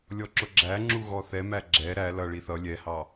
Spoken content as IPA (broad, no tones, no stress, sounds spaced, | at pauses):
lʲ ɔ ǁ ʊ ɡ͡ǁ æ ŋ͡ǁ u ɣ ɔ θ ɛ m æ ɡ͡ǁ ɛ ɾ æ l ʌ ɭ i θ ʌ lʲ ɛ h ɑ